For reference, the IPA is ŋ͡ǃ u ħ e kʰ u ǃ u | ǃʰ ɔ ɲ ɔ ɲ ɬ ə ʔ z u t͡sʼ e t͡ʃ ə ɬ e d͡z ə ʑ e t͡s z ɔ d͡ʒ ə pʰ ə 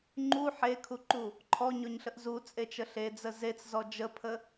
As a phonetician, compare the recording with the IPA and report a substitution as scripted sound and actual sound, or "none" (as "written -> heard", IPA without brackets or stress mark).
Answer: ʑ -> z